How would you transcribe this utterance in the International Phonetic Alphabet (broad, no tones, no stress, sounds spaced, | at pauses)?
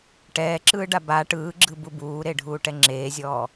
ʈ ɛː ǁ ɯː ɖ a b a ʈ ɯː ɡ͡ǁ ɯ b u b uː ɾ e ɖʱ uː ʈ ɛ ŋ͡ǁ eː zʲ ɔː